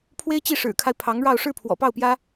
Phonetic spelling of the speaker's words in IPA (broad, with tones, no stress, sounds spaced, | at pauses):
pʰ w e˥ ɪ̯ t͡ɕ i˥˩ ʂ ɻ̩˨˩ kʰ a˦ ɪ̯ pʰ ɑ˧˥ ŋ ɻ ɑ˥˧ ʊ̯ ʂ ɻ̩˥˩ pʰ w ɔ̰˨˩ p ɑ˥˩ ʊ̯ p j ä˥